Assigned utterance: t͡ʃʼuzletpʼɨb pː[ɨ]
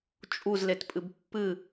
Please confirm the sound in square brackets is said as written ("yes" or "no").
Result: yes